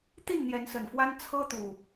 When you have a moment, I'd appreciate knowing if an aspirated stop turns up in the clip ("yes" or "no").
yes